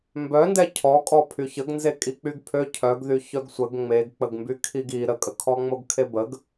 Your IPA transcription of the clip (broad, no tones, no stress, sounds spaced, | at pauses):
m b œ n d ɛ cʰ ɔ kʼ ɔ pʰ y ç ə ɡ n z e kʼ i k͡p y ɡ pʰ ø cʰ œ ɡ ð y ç œ ɡ sʷ ə ɡ ŋ͡m e ɡ k͡p ə ɡ m b y kʰ i ɡ i ɾ ə kʼ ə kʰ ɔ ŋ͡m o ɡ kʰ e b ə ɡ